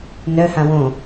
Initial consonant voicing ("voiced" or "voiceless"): voiced